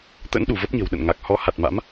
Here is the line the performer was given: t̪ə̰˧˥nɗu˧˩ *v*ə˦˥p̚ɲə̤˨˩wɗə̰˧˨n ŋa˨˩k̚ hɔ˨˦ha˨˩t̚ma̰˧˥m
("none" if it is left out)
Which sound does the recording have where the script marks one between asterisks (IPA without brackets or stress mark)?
v